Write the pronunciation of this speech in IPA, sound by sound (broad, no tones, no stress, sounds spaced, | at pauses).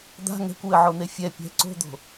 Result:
d̪ a̤ ŋ ɛ̤ kʷ w ɘ ʕ o n̪ e fʲ ɛ pʲ ɛ̤ ǀ o̤ d̪ o̤